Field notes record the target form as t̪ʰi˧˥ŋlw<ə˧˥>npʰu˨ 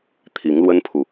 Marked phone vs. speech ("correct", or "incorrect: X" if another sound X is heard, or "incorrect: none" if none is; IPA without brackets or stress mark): incorrect: ə˥